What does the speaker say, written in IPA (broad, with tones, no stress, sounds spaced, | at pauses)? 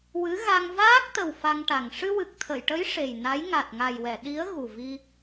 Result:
w ɨ˧˥ ɣ a˧ ŋ v aː˦˥ k̚ t̪ ə˨˩ w f a˧ ŋ ʈ a˨˩ ŋ ʂ ɨ˧ w ɨ˨˩ k̚ t̪ʰ ə˨˩˨ j ʈ ə˧˥ j ʂ e˨˩ j n a˧˥ j ŋ a˨˩ t̚ ŋ a˨˩ j w ɛ˨˩˨ ɗ i˧˥ ə̯ ɣ u˨˩ v i˧